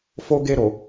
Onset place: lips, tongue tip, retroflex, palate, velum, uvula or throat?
lips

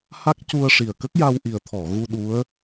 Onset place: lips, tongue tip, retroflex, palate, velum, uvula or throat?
throat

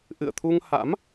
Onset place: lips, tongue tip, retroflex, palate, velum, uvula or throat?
throat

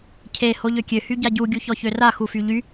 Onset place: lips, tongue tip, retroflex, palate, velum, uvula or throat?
palate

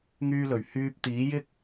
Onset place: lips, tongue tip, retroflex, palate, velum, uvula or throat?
velum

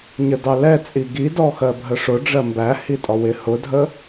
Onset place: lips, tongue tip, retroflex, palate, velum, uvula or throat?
palate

